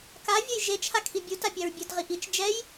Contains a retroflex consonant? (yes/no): no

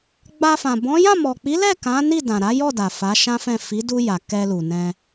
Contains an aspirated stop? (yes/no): no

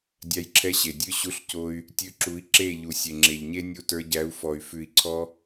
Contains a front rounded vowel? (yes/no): yes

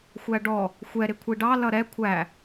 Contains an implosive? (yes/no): no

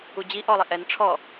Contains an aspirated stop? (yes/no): yes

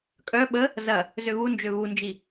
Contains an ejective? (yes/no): yes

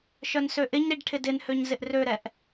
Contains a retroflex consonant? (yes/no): yes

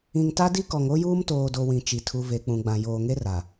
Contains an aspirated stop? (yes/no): yes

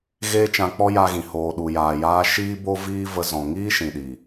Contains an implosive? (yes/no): yes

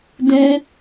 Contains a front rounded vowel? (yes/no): no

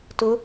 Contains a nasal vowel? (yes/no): no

